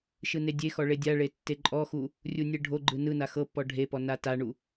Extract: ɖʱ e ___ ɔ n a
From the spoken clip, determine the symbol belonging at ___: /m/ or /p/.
p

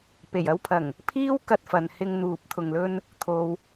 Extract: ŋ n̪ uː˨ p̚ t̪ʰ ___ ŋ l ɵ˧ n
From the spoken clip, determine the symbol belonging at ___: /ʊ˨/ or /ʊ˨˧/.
ʊ˨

